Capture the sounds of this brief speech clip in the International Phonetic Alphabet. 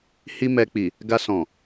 hi˦mɛ˧k͡pi˨ | ɡa˧sɔ̃˨

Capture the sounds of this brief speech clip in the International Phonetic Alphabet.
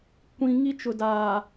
kʷĩ˨ ŋi˦t͡ʃʊ˨daː˨

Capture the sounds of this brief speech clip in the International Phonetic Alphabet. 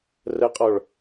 rəqʼɔɭ

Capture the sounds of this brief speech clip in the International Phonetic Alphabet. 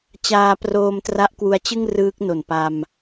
t͡ɕaː˧proː˧m tra˦˥ʔkwu˧a̯t͡ɕɯ˥˩ŋ rɯː˦˥k̚no˨˩npa˧m

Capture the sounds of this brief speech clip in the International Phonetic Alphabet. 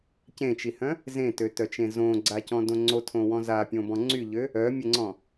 cẽt͡ʃihœ̃ | zẽtøtœt͡ʃẽ zõɡ͡ǀacɔ̃dõ ŋ͡ǀotʰõwɔ̃ zapʲõbɔ̃ ŋ͡ǀyʎø | œmʲəŋ͡ǀɔ̃

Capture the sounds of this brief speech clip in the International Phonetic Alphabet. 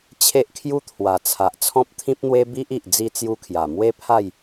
t͡ɕʰe˦ʔkʰju˦t̪ʰwa˨˩t͡sʰa˨ʔ t͡sʰɔ̃˦p̚t̪ʰĩ˦p̚n̪we˦ bi˦ʔi˨ʔ d͡zi˥˧t͡sju˦kʰja˨˩ mwe˦pʰa˥˧j

